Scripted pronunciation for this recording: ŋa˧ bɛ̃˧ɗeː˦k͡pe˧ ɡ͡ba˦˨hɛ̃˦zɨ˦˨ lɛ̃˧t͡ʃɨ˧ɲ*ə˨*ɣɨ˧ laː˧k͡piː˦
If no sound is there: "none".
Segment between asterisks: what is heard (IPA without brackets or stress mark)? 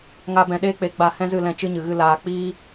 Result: ɨ˨